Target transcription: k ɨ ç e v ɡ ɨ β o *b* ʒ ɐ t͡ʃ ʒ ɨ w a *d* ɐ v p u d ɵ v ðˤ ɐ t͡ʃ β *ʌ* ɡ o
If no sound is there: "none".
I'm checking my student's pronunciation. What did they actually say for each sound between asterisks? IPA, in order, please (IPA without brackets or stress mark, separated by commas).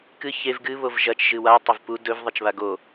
v, tˤ, a